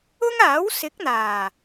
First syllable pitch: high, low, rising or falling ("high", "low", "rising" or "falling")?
high